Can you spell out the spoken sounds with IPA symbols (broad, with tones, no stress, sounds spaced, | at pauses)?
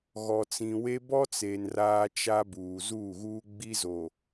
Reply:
ɣ ɔ˨ t͡s ĩ˨ w e˦ b ɔ˦ t͡s e˨ n r aː˦ t͡ʃ a˦ b uː˨ z uː˦˨ ɣ uː˦ ɡ͡b i˦ z o˨